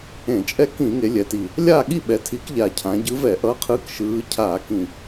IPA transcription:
ẽ˧˩˧ t͡ʃʼ ɛ˥˨ k ĩ˧˩˧ ŋ e˩˧ lʲ ɛ˩˧ t i˨˩ | lʲ aː˥˨ ɠ i˥˨ ɓ ɛ˩˧ tʰ i˨˥ k ʎ a˨˩ cʰ ã˩˧ ɟ ɯ˨˥ v ɛ˧˩˧ ʔ ʌ˨˥ qʰ ɯː˨˥ k ʃ ɯː˩˧ cʰ aː˧˩˧ k ĩ˨˩

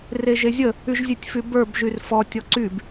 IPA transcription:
r e ʒ e zʲ ə | y ʒ zʲ e tʲ f y b ə˞ b ʒ y r f ɔ tʲ ɔ ǀ y b

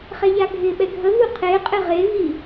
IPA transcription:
χ ɛ ʎ a ɡʱ ɪ ɓ ɛ ɡʱ ə v u qʰ e qʼ ɪ ʁ e v i

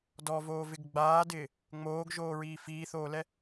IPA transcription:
d ɔ v oː v ɪ ɡ ɡ͡b aː d ɪː | ŋ͡m oː ɡ ʒ oː ɹ iː f iː θ oː l ɛ

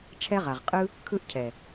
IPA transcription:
t͡ʃʰ ɛ˦ ʁ a˨ ʁ qʼ ɯ˦ | kʰ ɯ˦ ʔ cʰ ɛ˨

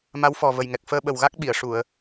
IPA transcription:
m a˧˥ w f ɔ˨˩ v ə˨˩ j ŋ ɛ˨˩ k̚ f əː˧ ɓ ə˨˩ w ɣ a˦˥ k̚ ɓ i˨˩˨ ə̯ ʂ u˨˩˨ ə̯

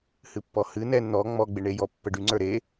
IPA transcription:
h ɨ pː ɔ h ɨ n ɛ n n̪ ɔ ŋ͡m ɔ ɡ͡b e ɳ e j ɔ pː ə ɖ y ŋ͡ǀ ə˞ ɾ e

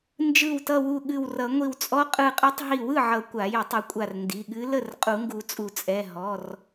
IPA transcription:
n d͡ʒ ɯ˧˩ w t ʌ˧˩ w u˧˩ ɠ ɨ˧˩ w r ʌ˨˩˦ ŋʷ i˧˩ w t͡sʼ ɔ˧˥ qʼ ɯ˧˩ qʼ ɯ˧˥ tˤ ɦ i˧˩ w ɯ˥˩ ʕ ʌ˨˩˦ kʷ a˨˩˦ j ə˨˩˦ tˤ ɨ˨˩˦ kʷʼ a˧˩ r n d i˩˧˩ ɠ ɨ˧˥ l ə˥˩ r qʼ u˨˩˦ ŋ ɡ u˨˩˦ t͡sʼ u˨˩˦ t͡sʼ ɛ˩˧˩ ɦ ɔ˩˧˩ r

